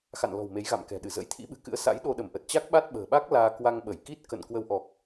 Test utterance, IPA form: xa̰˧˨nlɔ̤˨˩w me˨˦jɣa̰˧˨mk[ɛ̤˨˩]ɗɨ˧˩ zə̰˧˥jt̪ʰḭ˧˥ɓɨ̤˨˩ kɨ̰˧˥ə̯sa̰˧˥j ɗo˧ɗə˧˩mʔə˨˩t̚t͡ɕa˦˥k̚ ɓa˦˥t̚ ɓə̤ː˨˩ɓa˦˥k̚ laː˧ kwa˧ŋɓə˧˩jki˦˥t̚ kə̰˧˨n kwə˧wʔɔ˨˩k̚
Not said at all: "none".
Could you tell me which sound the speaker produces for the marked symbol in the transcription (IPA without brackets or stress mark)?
ɛ̤˨˩